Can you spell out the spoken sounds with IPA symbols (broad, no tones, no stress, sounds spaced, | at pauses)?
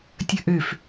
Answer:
tʲ ə ʔ ø f